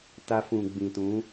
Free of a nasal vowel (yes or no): no